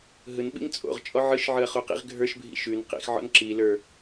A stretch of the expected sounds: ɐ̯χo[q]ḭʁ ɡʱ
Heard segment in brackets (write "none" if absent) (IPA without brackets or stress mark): q